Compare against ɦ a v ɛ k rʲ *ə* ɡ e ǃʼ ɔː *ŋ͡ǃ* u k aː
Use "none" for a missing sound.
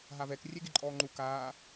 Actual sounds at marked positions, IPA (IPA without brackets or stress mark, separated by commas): ɛ, ŋ͡ǃ